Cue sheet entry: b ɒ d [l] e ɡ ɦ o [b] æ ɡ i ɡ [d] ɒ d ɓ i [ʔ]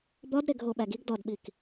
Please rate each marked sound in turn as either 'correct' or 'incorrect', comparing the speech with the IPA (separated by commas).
incorrect, incorrect, correct, incorrect